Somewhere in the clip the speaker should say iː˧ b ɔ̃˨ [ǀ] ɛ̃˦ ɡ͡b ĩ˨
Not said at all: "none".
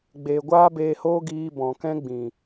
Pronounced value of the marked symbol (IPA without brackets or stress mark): k